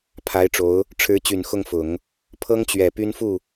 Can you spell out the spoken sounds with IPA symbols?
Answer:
pʰa˧˥ɪ̯ʈ͡ʂo˧˥ʊ̯ | ʈ͡ʂʰɻ̩˧˥ t͡ɕy˨˩nxʊ˥˩ŋfʊ˨˩˦ŋ | pʰɤ˥ŋt͡ɕɥɛ˨˩ py˥nfu˥˩

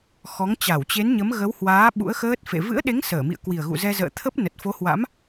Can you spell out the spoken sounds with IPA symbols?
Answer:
xɔ˨˦ŋt͡ɕa˧˩wt͡ɕe˨˦nɲə˨˦m ɣə˨˦whwaː˨˦ ɓṵ˧˥ə̯xəː˦˥t̚ fḛ˧˨ vɨ̰˧˥ə̯ɗe˨˦ŋ səː˧˩mḭ˧˨ə̯kwi˨˩ə̯ ɣṵ˧˨zɛ˧zə̰ː˧˨ t̪ʰə˦˥p̚ nə˨˩t̚fo˨˦hwa̰˧˥m

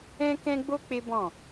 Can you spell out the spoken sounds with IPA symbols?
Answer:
ɛ̃˦kɛ̃˦ɡ͡bo˦ k͡pe˦bɔ̃˦˨

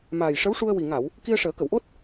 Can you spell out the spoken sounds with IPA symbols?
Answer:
maː˨˩jʂə˧˥wʂu˧ə̯ wi˨˩ŋa˨˩˨w | ki˧ə̯ʂəː˨˩˦kə˨˩˨wʔo˦˥t̚

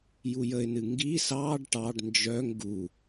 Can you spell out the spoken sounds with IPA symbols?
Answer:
jujəɪ̯nɨ ŋɡi sɑɖ ʈɑɖ nd͡ʒœŋ ɡu

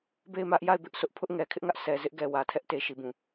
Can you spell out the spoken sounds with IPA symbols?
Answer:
be˦˨ɪ̯mä˦ʔ ja˦˨ɪ̯bɪ˦ʔsʰʊ˦ʔ pʰʊ˦ʔŋɛ˨kʰɪ˦ʔŋä˦ʔ sʰɛ˨ zɪ˦ʔɡɛ˨ wä˨tʰɛ˦ʔ te˨ʃi˨bũ˨

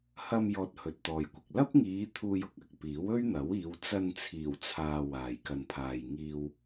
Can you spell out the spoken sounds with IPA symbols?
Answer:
hɐ˧m jɔː˧t̚hɵ˨t̚t̪ɔː˨jkʷɪ˨k̚ lɐ˥p̚ŋiː˨˧ t̪ʰuː˧jʊ˨k̚ɐ˨k̚ piː˨˥wɵ˥ɥn̪ɐ˨˥wiː˨˧w t͡sɐ˧nt͡sʰiː˨˩w t͡sʰaː˧waː˨j kɐ˨npʰaː˨jŋiː˧w

